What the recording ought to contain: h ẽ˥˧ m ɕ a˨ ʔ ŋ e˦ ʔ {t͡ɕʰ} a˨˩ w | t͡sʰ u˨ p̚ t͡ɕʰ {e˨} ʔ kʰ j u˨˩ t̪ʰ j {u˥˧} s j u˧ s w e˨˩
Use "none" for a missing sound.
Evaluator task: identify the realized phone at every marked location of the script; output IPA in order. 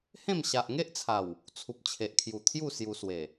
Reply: t͡sʰ, e˨, u˥˧

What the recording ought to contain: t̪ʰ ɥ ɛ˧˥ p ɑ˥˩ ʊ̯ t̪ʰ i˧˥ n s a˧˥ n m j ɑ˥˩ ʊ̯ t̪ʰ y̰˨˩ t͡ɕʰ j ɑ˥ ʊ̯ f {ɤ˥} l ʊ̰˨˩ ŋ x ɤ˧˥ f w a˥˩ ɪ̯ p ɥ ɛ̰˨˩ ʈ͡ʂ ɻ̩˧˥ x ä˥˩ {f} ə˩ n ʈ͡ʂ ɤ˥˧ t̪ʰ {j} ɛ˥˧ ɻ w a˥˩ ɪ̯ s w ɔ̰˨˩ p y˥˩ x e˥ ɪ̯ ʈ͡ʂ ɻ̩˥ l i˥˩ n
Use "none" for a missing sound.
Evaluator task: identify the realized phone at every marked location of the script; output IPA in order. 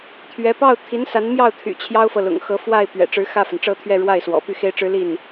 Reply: ɤ˨, f, ɥ

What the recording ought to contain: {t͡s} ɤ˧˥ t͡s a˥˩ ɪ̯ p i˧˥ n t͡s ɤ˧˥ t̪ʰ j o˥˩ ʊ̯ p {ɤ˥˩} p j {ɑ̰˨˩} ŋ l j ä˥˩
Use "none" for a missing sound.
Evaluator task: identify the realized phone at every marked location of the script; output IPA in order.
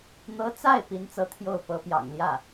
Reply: n̪, ɤ˧˥, ɑ̰˨˩

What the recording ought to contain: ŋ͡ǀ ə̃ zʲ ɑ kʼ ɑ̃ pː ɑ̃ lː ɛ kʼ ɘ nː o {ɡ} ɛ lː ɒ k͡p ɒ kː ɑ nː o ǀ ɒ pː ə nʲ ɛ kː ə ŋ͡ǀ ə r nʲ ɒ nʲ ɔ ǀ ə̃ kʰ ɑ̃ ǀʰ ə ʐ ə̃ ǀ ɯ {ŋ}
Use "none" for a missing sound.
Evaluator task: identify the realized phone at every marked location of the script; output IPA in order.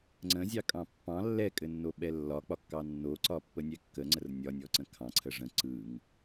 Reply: ɓ, ŋ

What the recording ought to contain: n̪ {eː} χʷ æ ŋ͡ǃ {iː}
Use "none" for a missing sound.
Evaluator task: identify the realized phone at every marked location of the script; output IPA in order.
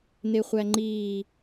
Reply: e, iː

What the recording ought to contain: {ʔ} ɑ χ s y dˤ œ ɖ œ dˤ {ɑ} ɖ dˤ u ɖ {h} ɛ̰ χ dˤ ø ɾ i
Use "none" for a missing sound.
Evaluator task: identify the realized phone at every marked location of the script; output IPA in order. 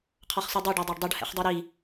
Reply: qʰ, ɑ, h

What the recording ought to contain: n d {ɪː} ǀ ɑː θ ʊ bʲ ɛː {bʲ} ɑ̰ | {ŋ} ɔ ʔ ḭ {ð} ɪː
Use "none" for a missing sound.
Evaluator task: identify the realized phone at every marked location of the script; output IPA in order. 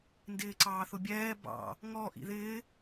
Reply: ɪː, b, ŋ, ð

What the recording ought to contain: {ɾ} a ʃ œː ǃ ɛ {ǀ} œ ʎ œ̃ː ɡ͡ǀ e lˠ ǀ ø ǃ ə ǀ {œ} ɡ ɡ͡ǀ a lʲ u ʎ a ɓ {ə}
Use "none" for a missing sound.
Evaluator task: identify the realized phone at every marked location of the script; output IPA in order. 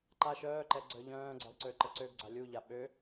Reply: ǃ, ɡ͡ǀ, ø, ø

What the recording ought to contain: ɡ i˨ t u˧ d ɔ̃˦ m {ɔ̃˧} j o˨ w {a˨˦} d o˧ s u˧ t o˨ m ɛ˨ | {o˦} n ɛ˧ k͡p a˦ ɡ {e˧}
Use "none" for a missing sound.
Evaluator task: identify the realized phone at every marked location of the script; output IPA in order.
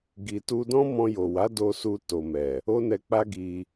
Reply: ɔ̃˧, a˨˦, o˦, i˧

